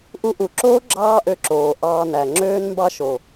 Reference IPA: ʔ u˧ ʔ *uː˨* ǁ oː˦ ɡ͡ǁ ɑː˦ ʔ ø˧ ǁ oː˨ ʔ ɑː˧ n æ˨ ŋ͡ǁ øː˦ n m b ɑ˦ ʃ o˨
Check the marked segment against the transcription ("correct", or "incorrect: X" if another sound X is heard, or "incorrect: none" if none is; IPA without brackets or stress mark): incorrect: u˨